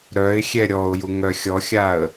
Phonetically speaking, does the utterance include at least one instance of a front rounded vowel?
yes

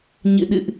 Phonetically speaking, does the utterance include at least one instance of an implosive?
yes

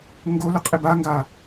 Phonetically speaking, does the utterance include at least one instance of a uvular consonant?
yes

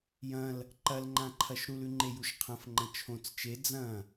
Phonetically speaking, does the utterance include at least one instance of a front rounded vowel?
no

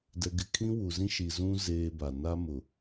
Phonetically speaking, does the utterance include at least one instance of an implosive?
no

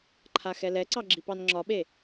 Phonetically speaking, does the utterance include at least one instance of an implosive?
yes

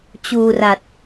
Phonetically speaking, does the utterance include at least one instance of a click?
no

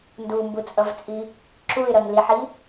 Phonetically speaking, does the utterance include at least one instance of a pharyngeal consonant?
yes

